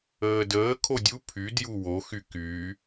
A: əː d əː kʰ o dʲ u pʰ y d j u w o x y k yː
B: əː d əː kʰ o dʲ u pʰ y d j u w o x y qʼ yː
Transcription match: A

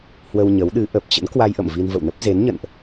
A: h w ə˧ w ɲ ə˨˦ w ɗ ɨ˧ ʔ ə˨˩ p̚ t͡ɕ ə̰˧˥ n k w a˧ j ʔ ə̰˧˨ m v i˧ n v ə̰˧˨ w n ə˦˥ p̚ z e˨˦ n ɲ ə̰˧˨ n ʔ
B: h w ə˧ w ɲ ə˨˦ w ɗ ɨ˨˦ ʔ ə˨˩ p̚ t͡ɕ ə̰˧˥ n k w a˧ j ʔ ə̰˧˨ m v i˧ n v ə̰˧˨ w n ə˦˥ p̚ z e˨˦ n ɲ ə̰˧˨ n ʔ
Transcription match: B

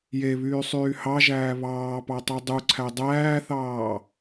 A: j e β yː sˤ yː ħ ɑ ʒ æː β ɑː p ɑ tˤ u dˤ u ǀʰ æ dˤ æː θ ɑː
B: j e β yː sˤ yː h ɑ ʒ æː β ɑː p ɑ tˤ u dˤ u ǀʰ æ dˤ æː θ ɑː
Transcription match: B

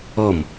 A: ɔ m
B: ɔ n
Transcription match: A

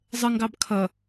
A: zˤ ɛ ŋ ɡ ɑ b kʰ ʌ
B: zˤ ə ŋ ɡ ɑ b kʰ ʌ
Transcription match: B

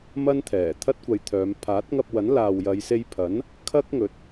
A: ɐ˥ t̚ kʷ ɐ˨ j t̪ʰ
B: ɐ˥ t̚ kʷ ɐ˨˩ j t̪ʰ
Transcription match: A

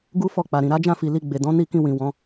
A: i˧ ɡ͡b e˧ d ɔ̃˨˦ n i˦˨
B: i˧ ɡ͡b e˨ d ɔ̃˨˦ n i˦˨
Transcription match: B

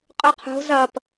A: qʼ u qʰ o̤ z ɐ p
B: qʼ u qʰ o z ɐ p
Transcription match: A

